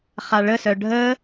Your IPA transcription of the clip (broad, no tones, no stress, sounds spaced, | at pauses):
χ a ɭ ə s œ ɖʱ ə